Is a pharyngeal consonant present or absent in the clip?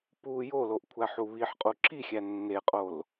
present